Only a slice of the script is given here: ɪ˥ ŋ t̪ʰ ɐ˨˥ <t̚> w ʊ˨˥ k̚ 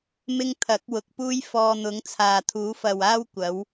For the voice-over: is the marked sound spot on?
no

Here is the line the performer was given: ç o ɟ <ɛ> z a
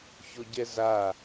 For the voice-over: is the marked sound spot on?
yes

